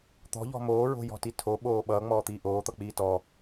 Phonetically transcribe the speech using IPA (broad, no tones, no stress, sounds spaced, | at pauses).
t̪ ɔ̤ ʎ ɔ̤ m oː ɹ o̤ j ɔ̤ t i tʰ o ɓ oː ɓ ʌː ŋ͡m ɔː t̪ iː ʔ oː t̪ ʌ k͡p iː t ɔ